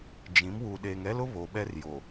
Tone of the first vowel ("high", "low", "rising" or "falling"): rising